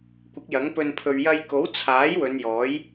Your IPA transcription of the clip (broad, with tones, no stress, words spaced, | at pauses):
kʷɪ˨˥k̚jɐ˨˥ŋpɵ˧n pʰɵ˨ɥjɐ˧j ko˨˥wt͡sʰaː˨˥j wɵ˨˧njɔː˨˥j